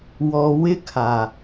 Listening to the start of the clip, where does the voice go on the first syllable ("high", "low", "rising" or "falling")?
low